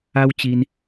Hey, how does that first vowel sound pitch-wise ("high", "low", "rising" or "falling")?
high